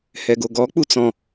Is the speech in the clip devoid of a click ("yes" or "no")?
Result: yes